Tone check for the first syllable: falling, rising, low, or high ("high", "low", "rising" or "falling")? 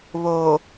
low